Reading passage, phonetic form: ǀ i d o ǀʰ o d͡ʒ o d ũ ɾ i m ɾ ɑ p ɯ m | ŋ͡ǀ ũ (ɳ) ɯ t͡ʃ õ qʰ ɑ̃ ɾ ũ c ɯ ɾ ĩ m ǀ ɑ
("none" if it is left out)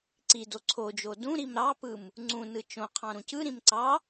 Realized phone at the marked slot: n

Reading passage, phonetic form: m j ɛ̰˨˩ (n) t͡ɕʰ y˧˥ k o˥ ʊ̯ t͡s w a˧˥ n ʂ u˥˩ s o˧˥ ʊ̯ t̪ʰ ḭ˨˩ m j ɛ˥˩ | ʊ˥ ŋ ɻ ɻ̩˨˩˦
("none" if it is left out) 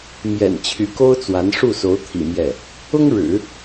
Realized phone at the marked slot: n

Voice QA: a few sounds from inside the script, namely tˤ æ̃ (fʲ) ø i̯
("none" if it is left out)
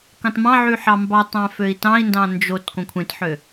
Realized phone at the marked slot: f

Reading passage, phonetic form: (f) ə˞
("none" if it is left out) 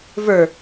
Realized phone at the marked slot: v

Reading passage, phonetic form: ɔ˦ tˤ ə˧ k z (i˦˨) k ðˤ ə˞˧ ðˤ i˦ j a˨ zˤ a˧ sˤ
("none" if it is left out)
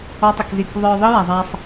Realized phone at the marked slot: i˦˨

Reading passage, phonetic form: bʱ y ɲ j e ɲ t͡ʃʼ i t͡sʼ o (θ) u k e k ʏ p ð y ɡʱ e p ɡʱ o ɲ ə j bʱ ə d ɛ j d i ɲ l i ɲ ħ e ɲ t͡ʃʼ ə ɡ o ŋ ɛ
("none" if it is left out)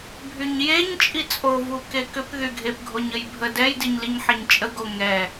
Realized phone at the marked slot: v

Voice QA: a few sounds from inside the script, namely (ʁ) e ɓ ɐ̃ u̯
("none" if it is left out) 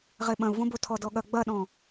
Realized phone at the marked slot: ʁ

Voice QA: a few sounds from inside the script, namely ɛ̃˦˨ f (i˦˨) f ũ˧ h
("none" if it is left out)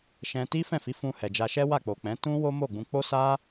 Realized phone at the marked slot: i˨˦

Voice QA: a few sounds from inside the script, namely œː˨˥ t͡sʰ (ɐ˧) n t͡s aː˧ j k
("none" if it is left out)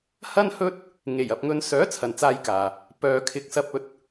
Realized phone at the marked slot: ɐ˨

